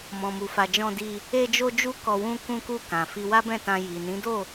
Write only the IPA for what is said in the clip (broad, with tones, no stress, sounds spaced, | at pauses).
m ɔ̃˨ m u˨ f a˨ d͡ʒ ɔ̃˧ d i˧ | e˧ d͡ʒ o˧ d͡ʒ u˧ k ɔ˨ w ũ˧ k ũ˧ k u˧ k ã˨ f i˧ w a˦ b ɛ̃˦˨ t ã˧ j i˨ n ĩ˨˦ d o˦˨